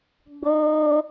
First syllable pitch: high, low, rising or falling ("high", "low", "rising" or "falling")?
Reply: high